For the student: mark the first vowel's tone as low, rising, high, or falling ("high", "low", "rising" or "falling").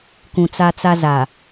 low